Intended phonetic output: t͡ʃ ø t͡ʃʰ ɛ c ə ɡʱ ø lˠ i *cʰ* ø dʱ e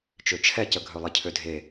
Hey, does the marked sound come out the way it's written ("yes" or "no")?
yes